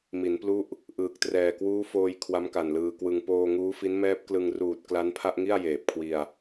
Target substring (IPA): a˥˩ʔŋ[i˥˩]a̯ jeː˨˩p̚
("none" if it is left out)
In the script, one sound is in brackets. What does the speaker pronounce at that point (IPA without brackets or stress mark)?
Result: i˥˩